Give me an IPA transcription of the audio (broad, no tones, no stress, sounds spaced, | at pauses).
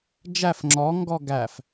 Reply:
d͡ʒ æ f ŋ͡ǁ ɔ ŋ ɡ ɔ ɡ æ f